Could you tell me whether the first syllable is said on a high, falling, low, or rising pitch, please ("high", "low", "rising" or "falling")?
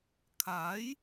rising